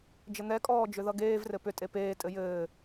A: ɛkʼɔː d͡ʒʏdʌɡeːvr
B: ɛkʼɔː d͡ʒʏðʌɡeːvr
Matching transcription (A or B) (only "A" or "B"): B